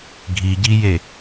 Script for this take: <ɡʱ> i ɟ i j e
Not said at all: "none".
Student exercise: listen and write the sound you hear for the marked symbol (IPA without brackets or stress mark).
ɡʱ